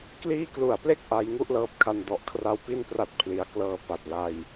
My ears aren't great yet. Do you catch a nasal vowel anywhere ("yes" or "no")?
no